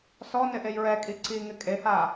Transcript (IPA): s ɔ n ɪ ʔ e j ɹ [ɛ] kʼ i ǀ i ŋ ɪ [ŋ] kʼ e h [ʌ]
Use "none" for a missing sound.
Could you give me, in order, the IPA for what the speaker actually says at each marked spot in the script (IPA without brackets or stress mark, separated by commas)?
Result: ɛ, none, a